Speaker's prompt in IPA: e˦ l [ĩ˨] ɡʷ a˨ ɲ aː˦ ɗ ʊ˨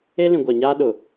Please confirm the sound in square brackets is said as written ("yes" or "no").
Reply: yes